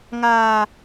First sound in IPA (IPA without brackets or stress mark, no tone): ŋ